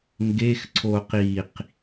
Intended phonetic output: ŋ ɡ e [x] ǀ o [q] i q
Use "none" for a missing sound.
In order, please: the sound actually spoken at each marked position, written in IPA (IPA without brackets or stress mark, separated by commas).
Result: x, q